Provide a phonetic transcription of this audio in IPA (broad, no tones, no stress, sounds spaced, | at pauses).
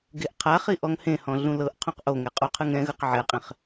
ɡ e ʔ qʰ a χ i ʔ ɔ ŋ h ẽ h ɔ̃ ɮ ũ l ɤ ʔ qʰ ũ q ʔ o ŋ ɛ qʼ u qʰ ɯ ŋ ɛ̃ ɣ ɯ q ʕ ɛ qʼ ẽ χ